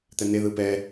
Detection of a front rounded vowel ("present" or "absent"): absent